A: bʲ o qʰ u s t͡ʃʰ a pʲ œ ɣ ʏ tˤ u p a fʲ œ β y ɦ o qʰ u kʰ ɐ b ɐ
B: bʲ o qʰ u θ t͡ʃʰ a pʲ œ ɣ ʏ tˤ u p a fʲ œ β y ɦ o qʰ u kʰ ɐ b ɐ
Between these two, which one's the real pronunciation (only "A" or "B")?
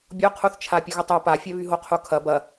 B